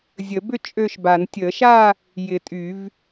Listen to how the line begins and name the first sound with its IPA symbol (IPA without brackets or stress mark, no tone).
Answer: zʲ